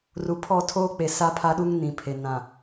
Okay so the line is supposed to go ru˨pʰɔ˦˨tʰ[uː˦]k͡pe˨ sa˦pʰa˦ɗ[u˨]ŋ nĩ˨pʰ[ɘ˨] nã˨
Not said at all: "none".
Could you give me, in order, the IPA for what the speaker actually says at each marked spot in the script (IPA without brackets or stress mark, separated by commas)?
oː˦, u˦, e˨